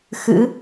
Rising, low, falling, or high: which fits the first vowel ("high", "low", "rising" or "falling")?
rising